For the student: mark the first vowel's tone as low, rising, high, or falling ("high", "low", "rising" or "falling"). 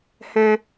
high